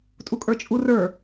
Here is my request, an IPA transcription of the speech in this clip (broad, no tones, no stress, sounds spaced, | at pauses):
tʼ u kʼ ə˞ t͡ʃʼ u r ə˞